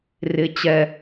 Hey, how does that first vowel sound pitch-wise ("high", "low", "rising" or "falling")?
low